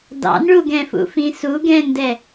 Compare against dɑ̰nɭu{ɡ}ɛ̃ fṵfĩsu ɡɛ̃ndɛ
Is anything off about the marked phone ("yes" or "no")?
no